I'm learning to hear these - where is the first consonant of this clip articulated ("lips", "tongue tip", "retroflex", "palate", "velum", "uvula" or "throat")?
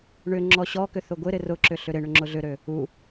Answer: retroflex